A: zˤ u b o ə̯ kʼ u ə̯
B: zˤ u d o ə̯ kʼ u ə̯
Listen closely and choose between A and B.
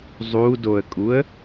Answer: B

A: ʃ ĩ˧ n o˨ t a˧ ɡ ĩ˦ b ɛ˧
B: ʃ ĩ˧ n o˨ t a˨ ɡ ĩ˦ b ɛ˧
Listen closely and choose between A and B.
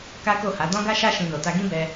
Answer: A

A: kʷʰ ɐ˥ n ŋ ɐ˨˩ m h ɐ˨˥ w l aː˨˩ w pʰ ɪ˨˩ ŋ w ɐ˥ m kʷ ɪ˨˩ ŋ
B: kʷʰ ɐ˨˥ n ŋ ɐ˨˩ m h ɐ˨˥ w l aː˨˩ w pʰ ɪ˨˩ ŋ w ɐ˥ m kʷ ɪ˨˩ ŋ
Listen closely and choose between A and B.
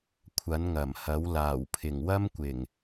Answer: B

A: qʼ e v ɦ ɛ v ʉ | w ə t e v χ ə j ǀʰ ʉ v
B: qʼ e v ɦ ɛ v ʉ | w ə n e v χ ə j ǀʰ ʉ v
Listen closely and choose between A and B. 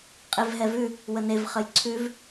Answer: B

